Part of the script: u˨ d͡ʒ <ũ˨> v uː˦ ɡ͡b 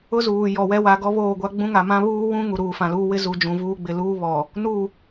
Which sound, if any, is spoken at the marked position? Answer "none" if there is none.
ũ˨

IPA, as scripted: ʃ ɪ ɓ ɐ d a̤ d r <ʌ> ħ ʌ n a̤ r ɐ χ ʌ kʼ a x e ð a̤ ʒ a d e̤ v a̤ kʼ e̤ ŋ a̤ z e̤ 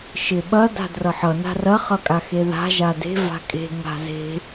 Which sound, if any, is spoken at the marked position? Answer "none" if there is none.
ʌ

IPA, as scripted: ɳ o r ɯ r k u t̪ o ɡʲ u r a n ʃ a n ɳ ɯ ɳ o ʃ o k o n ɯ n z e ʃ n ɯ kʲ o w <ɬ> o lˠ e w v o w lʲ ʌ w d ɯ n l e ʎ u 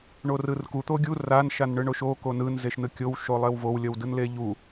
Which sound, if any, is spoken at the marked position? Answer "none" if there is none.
ʃ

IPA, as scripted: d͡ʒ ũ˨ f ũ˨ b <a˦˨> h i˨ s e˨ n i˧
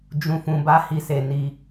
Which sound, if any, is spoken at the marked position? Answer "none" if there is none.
a˧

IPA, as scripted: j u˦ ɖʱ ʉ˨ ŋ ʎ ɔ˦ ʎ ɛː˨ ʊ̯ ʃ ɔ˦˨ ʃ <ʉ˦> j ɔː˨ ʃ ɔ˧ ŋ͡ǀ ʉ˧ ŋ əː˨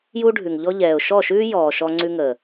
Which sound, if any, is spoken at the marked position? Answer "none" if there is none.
ʉː˦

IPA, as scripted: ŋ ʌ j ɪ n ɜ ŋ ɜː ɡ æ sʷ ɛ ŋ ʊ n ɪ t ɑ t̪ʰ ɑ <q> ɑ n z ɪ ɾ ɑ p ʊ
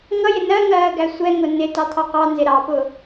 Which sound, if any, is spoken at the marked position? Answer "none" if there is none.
q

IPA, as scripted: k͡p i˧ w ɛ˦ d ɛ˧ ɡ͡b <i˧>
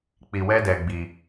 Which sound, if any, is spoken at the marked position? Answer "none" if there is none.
i˧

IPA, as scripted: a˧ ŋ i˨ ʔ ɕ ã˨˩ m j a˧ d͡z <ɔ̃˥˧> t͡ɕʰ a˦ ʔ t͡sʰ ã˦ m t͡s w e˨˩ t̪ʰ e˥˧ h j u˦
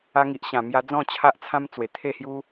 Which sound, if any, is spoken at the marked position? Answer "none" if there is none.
ɔ̃˥˧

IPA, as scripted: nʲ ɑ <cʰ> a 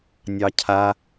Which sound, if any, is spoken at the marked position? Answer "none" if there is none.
cʰ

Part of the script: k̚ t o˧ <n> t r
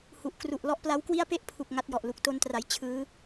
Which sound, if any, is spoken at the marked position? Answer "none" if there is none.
n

